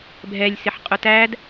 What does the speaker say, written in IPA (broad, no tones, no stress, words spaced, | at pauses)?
bʱɛlʲ sɪħqʼʊtæd